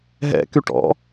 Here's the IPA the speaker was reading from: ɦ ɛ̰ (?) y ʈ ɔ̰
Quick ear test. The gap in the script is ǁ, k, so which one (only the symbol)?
k